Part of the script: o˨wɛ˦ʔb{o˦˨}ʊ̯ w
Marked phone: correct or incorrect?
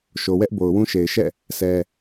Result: incorrect